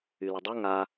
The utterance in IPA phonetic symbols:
y l ə dˤ ø ŋ a

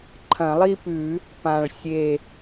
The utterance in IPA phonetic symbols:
ǃʰ ɐ̃˨˩˦ lˠ i˥˧ p ʉ˨˩˦ | p ã˨˩ ɭ sʲ e˨˩

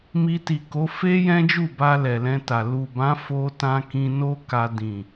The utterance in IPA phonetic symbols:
m i˧ t i˨ k o˨˦ f e˦ j ɛ̃˦ d͡ʒ u˦˨ b a˧ l ɛ˨ l ɛ̃˧ t a˨ l u˨ b ã˨˦ f o˧ t ã˧ k ĩ˧ n o˦ k a˧ d ĩ˨

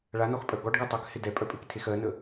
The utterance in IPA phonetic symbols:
ɭ a n ɔ x pʼ œ ɡ ɔ ɖ ɡ a tˤ ɜ k h ɪ d ɛ pʼ œ pʼ e k tʰ e x ɜ n ə

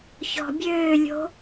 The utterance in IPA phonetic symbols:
ç ɔ̤ bʲ øː lʲ o̤

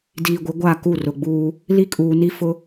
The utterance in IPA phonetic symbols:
d iː˨ ɡʷ ɪ˨˦ ɡʷ a˦˨ k u˦˨ r ʊ˨ ɡ͡b uː˦ | l i˦ kʼ uː˨ n i˦ f ʊ˦

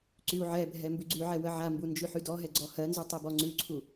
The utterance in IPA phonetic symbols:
ǀ y u̯ ʕ ɛ bʱ ɛ m b ʉ ɡ͡ǀ ʉ ʕ ɛ w ə ʕ a m b u n d͡ʒ ʉ ħ y d ɔ ɦ ɛ ɡ͡ǀ ɔ h ɜ n z ʉ tˤ ɛ b ɔ ŋ͡ǀ ʉ ǀʰ u

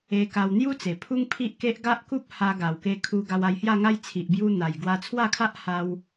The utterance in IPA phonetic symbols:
e˧ k a˧ w n̪ j u˦ t͡s e˨˩ pʰ u˦ ŋ pʰ i˦ ʔ k e˦ ʔ ɡ a˦ ʔ k u˦ p̚ h a˧ ɡ a˨˩ w k e˧ kʰ u˧ ɡ a˧ w a˧ j h j a˥˧ ŋ a˦ j t͡sʰ i˨ ʔ b j u˧ n̪ a˨˩ j ɡ w a˧ t͡sʰ w a˥˧ kʰ a˦ ʔ h a˧ w

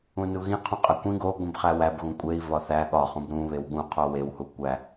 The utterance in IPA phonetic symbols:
ũ n u ɣ ĩ qʰ ũ qʼ æ kʷ ĩ ɡ o ɡʷ ĩ b χ æ w æ b ɣ ũ kʷʼ e i̯ v ɒ θ æ ɠ ɒ χ ũ b ɾ ũ β e w ɠ ũ qʰ o w e w h u kʷ æ

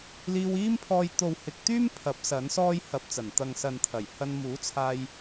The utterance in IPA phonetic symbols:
l iː˧ w iː˥ m pʰ ɔː˧ j t̪ o˨ w h ɪ˨˥ k̚ t̪ yː˥ m pʰ ɐ˨˥ p̚ s ɐ˨˥ n s ɔː˥ j h ɐ˨ p̚ t͡s ɐ˨˩ n t̪ ɐ˨ ŋ s ɐ˨ n t̪ʰ ɐ˨˩ j h ɐ˧ n m uː˨˥ t͡sʰ aː˧ j

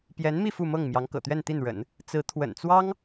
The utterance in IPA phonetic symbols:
p j ɛ˧˥ n m i˥˧ f u˥˧ m ɤ˥˩ ŋ m j ɑ˧˥ ŋ k ɤ̰˨˩ t̪ ɥ ɛ˥˧ n t̪ i˥˩ n ɻ ə̰˨˩˦ n | t͡s ɹ̩˧˥ t̪ʰ w ə̰˨˩ n t͡s w ɑ˥ ŋ

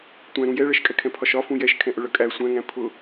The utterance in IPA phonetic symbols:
tʷ æ̃ ɾ ũ j ɛ ɭ ɜ ʃ kʼ ɛ kʰ ɛ̃ pʰ ɒ ʃ ɒ f ũ j ɛ ʃ kʰ ɛ̃ ʔ ʊ ɭ ʌ kʼ æ sʷ æ̃ ŋ æ̃ pʰ ʊ

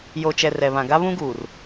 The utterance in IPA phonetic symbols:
j o˨ t͡ʃ ɛ˨ r ɛ˨ β ã˨ ɡ a˦ β ũ˦ ɡ uː˨ r

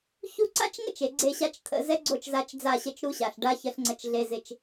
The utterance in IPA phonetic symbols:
ç u˦ ǀ a̰˦ t͡ʃ ŋ ə̰˦ t͡ʃ e˨ ɡ͡ǀ e˦˨ ɕ a˦ t͡ʃ t̪ʰ ə̰˨ z ɛ˦ ɡ͡ǀ o˦˨ t͡ʃ z a˨˦ t͡ʃ d͡z a˦˨ ɕ ə˦ t͡ʃ ɾ u˦ ɕ a˨ ɬ ɖ a˦ ç ə˨˦ ɬ ŋ͡ǀ ə˨ t͡ʃ ɮ e˨ z ɪ˦ t͡ʃ

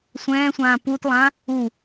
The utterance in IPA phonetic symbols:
sʷ ɛ̃ː sʷ ãː p u t lˠ ã | u

